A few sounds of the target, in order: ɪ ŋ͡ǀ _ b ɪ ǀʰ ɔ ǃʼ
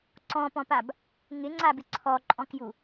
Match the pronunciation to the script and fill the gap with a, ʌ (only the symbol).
a